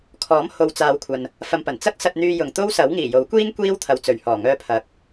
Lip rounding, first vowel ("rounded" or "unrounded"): rounded